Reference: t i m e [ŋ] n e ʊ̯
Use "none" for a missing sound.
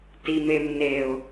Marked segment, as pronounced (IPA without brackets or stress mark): m